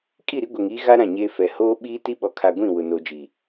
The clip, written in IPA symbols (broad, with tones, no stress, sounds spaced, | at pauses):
kʼ i˦˨ ɾ i˦ ɡʷ ɛ˨ ŋ iː˦ ɣ a˦ ɾ ã˦˨ ɲ eː˦ f ɛ˨ h oː˦ ɓ iː˦ t i˦ ɓ ɔ˨ kʰ a˨ ɡʷ ĩ˦˨ w ʊ˨ n o˨ d͡ʒ iː˨